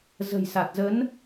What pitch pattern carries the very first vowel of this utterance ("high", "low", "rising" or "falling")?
low